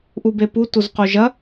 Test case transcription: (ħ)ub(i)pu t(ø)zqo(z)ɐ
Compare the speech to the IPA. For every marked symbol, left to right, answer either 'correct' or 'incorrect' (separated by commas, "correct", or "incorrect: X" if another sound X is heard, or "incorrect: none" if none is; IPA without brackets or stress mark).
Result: incorrect: ʔ, incorrect: e, incorrect: u, incorrect: ʒ